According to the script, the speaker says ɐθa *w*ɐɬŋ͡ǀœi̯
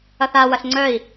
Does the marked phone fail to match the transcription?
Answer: no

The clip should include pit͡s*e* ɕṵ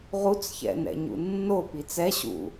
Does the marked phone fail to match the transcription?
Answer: yes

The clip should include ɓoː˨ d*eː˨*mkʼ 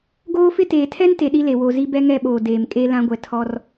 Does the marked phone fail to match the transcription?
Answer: no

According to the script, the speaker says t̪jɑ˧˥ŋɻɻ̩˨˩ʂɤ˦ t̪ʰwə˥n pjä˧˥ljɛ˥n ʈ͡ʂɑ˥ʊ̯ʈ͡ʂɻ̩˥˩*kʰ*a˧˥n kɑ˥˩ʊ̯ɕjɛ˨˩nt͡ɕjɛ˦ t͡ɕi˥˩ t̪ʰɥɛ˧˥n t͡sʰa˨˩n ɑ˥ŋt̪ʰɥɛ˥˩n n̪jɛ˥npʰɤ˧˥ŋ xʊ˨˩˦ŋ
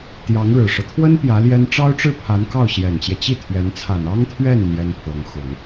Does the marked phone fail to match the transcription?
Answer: yes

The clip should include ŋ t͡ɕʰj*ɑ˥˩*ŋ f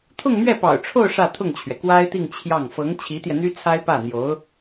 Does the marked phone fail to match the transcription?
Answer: no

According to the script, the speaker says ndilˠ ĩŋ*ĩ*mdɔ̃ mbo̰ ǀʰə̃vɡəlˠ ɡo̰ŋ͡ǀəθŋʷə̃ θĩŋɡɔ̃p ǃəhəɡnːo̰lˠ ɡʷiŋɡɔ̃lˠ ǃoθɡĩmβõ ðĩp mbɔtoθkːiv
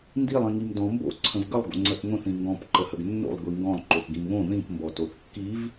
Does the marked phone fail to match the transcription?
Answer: yes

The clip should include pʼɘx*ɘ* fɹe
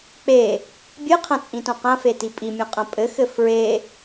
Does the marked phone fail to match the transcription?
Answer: no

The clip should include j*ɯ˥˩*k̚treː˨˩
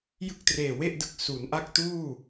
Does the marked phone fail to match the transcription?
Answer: no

